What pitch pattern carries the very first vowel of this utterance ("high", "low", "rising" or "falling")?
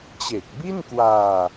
low